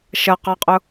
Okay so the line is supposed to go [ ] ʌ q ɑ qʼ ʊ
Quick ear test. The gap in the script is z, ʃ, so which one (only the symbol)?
ʃ